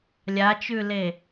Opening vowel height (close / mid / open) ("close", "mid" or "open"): open